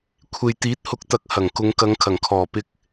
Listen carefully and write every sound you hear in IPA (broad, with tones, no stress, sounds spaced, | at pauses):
kʷʰ e˨ j t̪ iː˨˥ t̚ h ʊ˨ k̚ t̪ ɐ˨ k̚ h ɐ˨˩ ŋ k ʊ˨˧ ŋ k ɐ˨˧ ŋ kʰ ɐ˨˩ ŋ kʰ ɔː˨˩ p ɪ˧ k̚